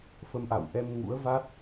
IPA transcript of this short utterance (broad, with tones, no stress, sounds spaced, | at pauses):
f ə˨˦ m ʔ a̰˧˨ w ʔ ɛ˧ m ŋ ṵ˧˥ ə̯ v a˦˥ t̚